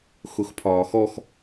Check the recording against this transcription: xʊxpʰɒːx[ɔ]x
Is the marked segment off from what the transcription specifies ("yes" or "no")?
no